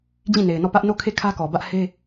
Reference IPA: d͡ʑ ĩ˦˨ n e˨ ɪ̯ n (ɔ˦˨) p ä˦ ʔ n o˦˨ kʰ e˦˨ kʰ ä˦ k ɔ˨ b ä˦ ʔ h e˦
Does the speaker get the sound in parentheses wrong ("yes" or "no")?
no